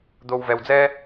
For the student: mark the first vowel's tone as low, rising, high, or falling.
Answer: low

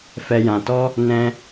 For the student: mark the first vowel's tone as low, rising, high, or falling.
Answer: low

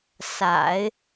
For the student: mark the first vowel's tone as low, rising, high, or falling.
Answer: low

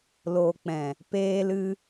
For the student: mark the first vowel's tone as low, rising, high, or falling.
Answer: low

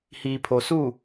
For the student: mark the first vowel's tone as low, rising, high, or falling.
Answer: low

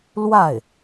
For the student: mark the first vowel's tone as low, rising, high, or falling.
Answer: falling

